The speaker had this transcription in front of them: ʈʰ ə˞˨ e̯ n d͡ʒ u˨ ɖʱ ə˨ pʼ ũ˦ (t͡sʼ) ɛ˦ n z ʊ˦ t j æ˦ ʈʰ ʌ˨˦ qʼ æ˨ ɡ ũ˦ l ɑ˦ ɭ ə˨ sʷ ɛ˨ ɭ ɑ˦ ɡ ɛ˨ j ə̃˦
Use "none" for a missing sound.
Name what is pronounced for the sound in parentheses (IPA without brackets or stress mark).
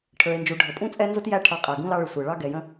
t͡sʼ